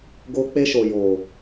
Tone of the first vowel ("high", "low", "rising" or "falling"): high